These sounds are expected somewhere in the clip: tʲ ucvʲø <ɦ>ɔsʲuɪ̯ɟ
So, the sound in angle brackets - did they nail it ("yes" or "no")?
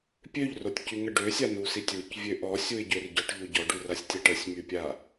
no